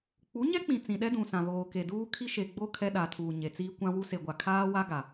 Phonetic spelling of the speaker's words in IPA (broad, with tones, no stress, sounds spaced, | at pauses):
k͡p u˨˦ ɲ ɛ˦ k͡p ĩ˨ t͡s ĩ˨ ɗ ɛ˦ d ũ˨ s ã˨ β oː˨ k e˨ d uː˦ kʰ i˦ ʃ e˨ ɡ͡b o˦ kʰ ɛ˦ ɗ a˨ tʰ uː˨ ɲ e˨ t͡s iː˦ kʷ ã˦ w u˦ s e˨ ɡʷ a˨ kʰ aː˦ w a˦ ɡ a˨